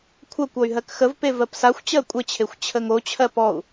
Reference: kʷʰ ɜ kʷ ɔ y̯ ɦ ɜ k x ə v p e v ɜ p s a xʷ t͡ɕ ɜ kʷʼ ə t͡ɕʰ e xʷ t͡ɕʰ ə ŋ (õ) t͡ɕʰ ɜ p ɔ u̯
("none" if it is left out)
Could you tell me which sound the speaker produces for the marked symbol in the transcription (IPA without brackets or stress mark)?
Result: o